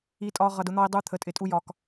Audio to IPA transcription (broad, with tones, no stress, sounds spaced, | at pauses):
i˦ tʼ ɒ˦ ʁ ʌ˨ d ʊ˧ n̪ ɒ˧ i̯ dˤ u˧ t̪ʰ ə˨ tʼ ɪ˨ tʼ u˦ j ɒ˧ k